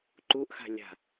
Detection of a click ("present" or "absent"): present